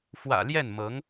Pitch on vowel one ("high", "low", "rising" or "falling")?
low